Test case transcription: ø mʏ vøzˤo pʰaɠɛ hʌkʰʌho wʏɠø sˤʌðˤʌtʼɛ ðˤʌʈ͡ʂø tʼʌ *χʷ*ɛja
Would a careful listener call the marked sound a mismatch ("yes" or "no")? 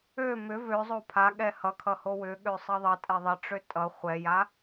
no